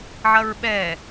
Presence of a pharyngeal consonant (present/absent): present